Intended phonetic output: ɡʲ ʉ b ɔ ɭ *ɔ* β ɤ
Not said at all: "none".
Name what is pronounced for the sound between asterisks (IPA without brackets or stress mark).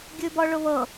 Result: ʊ